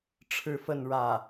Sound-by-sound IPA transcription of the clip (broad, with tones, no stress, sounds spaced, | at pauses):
ʈ͡ʂʰ ɻ̩˥ f ə˥˧ n ɻ ä˥˩